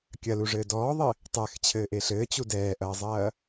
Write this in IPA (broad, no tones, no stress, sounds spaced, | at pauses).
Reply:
kʲ ɐ l u ʐ ɘː d ɔː ðˤ ɘ | tˤ ɛ x t͡ɕʰ ɘː ʔ e ɬ ɘː t͡ɕ u d ɛː ʔ ɐː zˤ ɐː